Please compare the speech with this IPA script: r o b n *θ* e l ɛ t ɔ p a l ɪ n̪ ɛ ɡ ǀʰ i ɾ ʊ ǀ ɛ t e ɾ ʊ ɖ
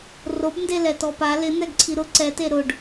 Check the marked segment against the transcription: incorrect: d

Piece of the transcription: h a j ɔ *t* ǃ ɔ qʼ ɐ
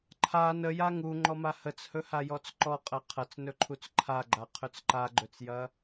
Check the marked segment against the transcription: incorrect: t͡s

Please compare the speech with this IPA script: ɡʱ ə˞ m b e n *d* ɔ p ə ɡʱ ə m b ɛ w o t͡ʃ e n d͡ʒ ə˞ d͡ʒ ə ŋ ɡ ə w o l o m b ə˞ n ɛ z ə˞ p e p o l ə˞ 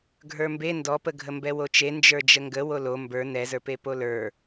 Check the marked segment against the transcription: correct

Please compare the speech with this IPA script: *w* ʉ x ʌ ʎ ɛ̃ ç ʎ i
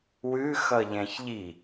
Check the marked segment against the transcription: correct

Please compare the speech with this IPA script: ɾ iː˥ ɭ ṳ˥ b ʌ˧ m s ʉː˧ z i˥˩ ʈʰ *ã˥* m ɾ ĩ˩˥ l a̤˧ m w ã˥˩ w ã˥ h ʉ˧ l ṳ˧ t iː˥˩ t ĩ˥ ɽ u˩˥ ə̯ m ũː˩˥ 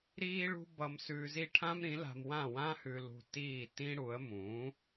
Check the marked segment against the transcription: correct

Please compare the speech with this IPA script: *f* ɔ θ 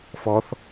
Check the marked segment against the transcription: correct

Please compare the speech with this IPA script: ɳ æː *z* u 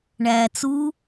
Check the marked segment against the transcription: incorrect: t͡s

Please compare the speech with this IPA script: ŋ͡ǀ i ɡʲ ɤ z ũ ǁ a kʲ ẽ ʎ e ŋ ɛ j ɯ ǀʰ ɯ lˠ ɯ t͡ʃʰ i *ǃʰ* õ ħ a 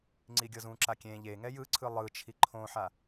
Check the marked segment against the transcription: correct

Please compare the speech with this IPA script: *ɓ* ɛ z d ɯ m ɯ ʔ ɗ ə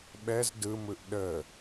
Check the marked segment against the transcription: correct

